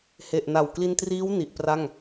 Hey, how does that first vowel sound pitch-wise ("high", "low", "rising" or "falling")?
low